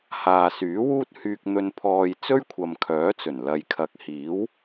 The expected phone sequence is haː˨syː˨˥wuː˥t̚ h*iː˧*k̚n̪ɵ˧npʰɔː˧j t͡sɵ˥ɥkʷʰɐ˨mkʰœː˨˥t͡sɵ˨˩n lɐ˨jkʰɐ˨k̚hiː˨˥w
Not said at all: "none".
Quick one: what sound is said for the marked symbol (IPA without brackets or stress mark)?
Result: yː˧